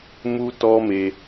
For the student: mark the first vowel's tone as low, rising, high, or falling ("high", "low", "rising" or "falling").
high